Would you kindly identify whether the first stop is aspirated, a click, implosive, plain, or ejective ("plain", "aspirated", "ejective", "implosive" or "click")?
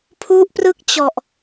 aspirated